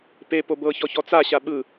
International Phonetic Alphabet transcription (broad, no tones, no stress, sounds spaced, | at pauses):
p e p o b ɤ ç ɔ ç ɔ t͡s a ɕ a ɓ ɯ